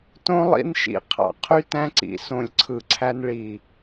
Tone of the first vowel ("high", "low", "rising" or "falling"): high